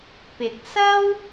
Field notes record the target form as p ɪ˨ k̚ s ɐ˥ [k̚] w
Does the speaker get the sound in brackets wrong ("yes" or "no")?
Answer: yes